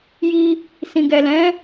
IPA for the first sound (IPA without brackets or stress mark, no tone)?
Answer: j